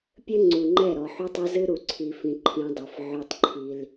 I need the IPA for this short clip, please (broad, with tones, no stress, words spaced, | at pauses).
pʲɘ˦ŋ͡ǀu˨ŋ͡ǃɛ˦˨ ɾɔ˨ħu˦tˤɛ˦ zɨ˦ɾu˨ǀʰi˨fĩ˨ ǃʰĩ˦dˤɨ˨f ʕʉ˦tˤǃʰi˦l